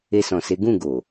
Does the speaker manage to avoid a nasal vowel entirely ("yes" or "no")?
no